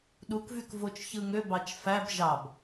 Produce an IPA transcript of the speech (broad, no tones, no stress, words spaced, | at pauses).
ɗukvyk vot͡ʃçɯŋø bɑt͡ʃfæb ʒɑb